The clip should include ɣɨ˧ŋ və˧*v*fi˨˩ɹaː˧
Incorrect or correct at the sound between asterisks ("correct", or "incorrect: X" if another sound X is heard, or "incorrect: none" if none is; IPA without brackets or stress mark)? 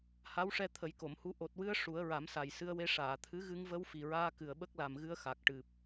incorrect: w